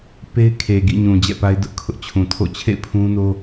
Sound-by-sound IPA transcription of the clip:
pe˦ɪ̯kʰe˨ɡḭ˦˨ɲũ˨ d͡ʑɛ̰˦˨pa˦ɪ̯ dʊ˦ʔkʰʊ˦ʔ t͡ɕʰũ˨tʰo̰˦˨ t͡ɕʰḛ˦˨ɪ̯pʰũ˦no˦

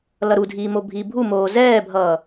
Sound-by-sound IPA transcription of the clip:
lʌɾudʱiː mobʱiːbʱumoː zɛːbʱʌː

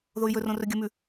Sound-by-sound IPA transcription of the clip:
ðoy̯jɵrõ rɵɡʲəmʉ

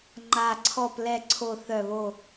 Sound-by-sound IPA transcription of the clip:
ŋ͡ǃa˨˩ ǀʰɔ˨˩plɛ˨˩ǀʰo˨˩ θœ˨˩βo˨˩

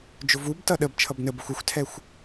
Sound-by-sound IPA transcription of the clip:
d͡ʒʊvub tʌɗəb t͡ʃʰʌbnəbəxʷ ɪxʷtʰɛxʷ

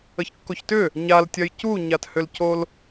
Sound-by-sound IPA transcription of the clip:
əçkːoçtʏ | ɲaltʲɜj cuɲathʏlcol

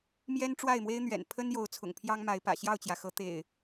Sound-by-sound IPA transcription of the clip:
mjɛ˦nʈ͡ʂwa˥˨ɪ̯mwe˦ɪ̯n̪ɥɛ̰˨˩n pʰə˦njo˨˦ʊ̯ t͡sʰʊ̰˨˩ŋpʰjɑ˦ŋma˨˦ɪ̯pä̰˨˩ ɕjɑ˥˨ʊ̯t͡ɕjä˩xɤ˨˦ t̪ḛ˨˩ɪ̯

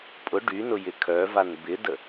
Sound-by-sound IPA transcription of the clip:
pʼʊ ɖynʊjɪ kʰœvan bɪdə

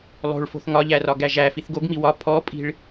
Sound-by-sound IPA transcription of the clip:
lˠo̤ɭfo̤θ ŋɒʎærɒ ɡæʒæ fiθɡoɡmi wɒ pʰɔpʼi̤ɭ

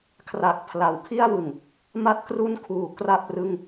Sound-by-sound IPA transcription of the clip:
kʰra˨˩k̚pʰla˩˦w kʰi˥˩a̯wɯ˨˩ŋ | ma˦˥t̚kru˦˥nkʰuː˩˦ kra˥˩p̚rɯ˥˩ŋ

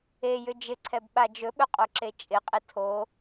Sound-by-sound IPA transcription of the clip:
ejʏ d͡ʒɪǀʰɛbɓa d͡ʒɵɓɵqʼoǁe t͡ʃʼɪqʼɪ tʰo

